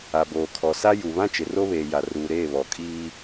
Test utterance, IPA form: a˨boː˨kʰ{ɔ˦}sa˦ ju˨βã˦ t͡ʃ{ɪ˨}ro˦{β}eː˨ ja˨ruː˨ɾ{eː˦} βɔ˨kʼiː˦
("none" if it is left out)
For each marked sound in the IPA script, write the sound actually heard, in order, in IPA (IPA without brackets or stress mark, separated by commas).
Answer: ɔ˨, ɪ˨, β, eː˦˨